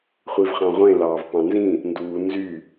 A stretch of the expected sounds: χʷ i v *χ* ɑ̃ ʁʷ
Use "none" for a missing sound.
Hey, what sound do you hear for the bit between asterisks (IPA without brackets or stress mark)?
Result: χ